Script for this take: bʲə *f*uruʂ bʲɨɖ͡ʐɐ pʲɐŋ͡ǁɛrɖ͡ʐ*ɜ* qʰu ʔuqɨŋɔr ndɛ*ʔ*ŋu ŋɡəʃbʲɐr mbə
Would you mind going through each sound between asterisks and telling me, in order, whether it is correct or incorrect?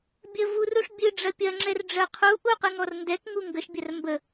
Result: incorrect: v, correct, incorrect: k

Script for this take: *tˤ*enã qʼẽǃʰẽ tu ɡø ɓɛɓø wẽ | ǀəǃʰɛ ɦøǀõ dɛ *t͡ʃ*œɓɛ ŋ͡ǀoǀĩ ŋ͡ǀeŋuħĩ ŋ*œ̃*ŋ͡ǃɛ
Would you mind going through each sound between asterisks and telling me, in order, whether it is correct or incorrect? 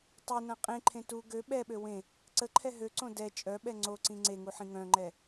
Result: correct, incorrect: t͡ʃʼ, correct

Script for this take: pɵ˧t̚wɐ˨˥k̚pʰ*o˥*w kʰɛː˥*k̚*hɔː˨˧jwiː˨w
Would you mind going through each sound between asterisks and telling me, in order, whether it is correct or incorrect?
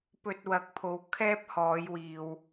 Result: incorrect: o˨˧, incorrect: p̚

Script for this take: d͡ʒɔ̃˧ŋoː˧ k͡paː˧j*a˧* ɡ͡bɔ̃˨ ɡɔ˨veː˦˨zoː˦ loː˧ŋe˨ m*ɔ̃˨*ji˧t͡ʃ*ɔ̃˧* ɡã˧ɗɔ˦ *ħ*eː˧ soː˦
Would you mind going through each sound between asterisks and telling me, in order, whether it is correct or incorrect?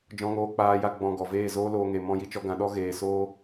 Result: correct, incorrect: ɔ̃˧, incorrect: ɔ˧, incorrect: ɣ

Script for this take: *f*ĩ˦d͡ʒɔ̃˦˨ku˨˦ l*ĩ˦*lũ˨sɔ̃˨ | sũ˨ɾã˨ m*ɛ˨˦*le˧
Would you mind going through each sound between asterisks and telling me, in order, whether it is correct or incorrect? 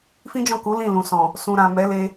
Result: correct, incorrect: ĩ˦˨, correct

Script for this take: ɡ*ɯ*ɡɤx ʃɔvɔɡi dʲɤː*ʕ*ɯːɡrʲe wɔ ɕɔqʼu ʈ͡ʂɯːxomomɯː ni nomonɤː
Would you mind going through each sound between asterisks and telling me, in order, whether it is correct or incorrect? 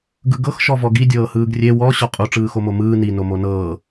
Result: correct, incorrect: h

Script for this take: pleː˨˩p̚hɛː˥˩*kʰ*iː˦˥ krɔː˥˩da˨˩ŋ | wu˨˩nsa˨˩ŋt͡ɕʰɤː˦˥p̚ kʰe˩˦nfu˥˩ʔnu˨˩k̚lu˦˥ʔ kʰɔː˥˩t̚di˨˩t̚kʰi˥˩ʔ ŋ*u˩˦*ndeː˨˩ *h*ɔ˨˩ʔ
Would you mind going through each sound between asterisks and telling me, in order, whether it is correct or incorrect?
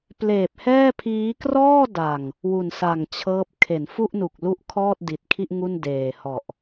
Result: incorrect: pʰ, incorrect: u˥˩, correct

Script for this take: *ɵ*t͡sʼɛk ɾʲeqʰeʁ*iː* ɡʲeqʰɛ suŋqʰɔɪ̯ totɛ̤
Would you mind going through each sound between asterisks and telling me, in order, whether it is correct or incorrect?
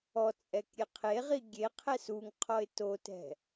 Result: incorrect: ɔ, incorrect: i

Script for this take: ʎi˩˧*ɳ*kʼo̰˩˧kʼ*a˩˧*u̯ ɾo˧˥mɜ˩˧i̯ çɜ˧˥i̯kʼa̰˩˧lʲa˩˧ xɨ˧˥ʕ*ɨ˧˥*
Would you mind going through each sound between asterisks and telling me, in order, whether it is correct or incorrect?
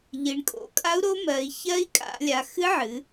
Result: correct, incorrect: a˧˥, incorrect: ɨ˩˧

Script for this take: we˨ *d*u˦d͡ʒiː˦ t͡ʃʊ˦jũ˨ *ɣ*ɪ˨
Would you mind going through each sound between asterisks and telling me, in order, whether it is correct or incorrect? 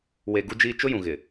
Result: incorrect: ɡ, correct

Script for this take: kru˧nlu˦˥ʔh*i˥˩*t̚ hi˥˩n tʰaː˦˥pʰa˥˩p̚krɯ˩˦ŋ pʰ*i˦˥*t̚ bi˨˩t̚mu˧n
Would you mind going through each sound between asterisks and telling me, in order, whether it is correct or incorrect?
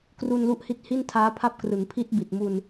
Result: incorrect: i˦˥, correct

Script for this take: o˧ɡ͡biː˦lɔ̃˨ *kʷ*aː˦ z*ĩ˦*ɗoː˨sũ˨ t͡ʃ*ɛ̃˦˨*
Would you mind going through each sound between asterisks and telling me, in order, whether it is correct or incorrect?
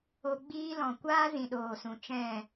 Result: correct, incorrect: ĩ˨, correct

